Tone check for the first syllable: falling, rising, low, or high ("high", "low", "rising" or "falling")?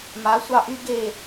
rising